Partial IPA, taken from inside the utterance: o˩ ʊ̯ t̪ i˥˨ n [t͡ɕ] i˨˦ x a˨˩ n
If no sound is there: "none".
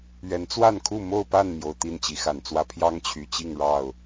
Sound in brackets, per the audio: t͡ɕ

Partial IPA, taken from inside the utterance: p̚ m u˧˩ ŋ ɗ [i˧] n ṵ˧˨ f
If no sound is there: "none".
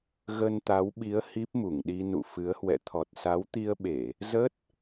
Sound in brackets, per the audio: i˧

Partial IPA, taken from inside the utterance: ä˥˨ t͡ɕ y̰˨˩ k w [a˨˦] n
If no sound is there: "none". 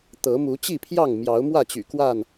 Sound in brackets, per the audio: a˥˨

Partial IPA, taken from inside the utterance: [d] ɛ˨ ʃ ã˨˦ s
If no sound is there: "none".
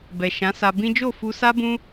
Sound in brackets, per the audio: b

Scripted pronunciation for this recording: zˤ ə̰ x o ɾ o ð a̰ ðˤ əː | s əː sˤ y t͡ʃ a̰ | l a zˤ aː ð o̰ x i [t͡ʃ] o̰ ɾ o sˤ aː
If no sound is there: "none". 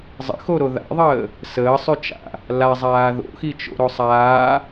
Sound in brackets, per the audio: t͡ʃ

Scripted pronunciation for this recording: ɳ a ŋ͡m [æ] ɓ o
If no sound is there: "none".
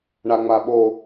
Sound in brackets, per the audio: a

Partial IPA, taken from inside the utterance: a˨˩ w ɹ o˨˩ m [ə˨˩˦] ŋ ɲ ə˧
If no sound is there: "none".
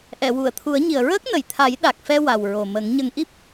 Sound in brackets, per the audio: ə˨˩˦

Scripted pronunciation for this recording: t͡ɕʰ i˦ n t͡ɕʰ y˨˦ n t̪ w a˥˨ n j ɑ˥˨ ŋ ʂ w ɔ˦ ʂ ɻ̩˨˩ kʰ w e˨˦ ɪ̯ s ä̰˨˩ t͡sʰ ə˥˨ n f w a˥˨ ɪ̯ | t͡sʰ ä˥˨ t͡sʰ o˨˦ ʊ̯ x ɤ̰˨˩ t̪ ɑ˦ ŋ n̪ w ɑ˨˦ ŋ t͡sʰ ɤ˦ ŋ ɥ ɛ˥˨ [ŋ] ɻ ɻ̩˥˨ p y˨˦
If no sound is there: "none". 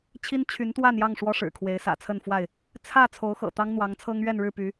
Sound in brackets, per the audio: n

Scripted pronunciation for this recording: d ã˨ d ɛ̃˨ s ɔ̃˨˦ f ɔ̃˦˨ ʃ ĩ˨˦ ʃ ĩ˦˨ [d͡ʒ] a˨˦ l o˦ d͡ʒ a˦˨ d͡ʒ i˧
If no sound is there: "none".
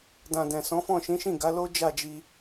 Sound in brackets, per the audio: ɡ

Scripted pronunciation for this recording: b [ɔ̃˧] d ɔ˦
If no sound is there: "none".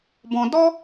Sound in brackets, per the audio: ɔ̃˧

